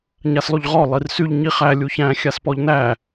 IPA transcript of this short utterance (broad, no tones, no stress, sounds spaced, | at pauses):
ɲ a s lˠ y ʎ ʁ ɔ lˠ i r s y ʎ ɲ i χ æ lʲ u ç æ̃ xʲ a s p ɔ ʎ n æ